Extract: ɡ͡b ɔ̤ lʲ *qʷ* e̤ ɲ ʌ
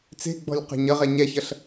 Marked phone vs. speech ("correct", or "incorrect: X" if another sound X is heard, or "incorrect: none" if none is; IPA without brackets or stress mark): incorrect: q